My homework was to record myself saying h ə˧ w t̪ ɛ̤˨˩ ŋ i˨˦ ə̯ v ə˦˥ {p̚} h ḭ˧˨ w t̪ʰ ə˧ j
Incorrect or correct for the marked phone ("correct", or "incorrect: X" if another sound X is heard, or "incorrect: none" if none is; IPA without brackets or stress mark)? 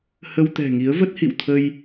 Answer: incorrect: t̚